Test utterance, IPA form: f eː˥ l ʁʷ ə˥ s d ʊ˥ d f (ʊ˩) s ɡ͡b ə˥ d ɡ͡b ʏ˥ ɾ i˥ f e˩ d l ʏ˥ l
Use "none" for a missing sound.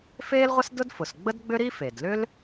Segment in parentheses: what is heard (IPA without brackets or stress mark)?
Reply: ʊ˩